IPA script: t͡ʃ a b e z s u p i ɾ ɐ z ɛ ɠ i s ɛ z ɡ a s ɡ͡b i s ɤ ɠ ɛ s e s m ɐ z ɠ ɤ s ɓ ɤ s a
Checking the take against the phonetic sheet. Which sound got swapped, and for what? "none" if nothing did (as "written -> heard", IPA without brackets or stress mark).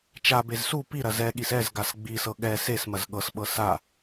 none